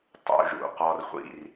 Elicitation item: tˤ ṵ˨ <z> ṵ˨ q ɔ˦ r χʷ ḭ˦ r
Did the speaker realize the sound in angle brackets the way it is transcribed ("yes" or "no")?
no